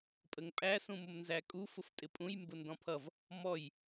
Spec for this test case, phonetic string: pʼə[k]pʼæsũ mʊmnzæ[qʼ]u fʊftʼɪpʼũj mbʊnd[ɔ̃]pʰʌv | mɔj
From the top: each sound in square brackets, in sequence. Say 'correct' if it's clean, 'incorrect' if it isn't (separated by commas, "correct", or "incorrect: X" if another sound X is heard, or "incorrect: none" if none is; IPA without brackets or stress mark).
incorrect: ŋ, incorrect: kʼ, correct